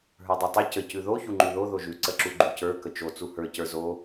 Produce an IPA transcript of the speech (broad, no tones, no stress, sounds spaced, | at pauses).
ɦ ə˞ dˤ ɯ tˤ u c ə c ʉ ð o ç u ŋ͡ǃ ʉ ð o ð o ʒ ʉ ǀ ə ǁ u ɡ͡ǃ u c ə˞ k ə t͡ʃ o t͡s u h ə˞ c ə˞ z o